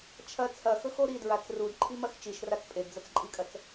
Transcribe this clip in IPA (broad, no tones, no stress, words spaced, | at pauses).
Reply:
t͡ʃʰɐ t͡sʰɐxɵxo ɾidɹat͡s rudǃʰimɐx t͡ʃiʃrat͡s pʼedd͡zɐt͡sǃʼikʼɐt͡s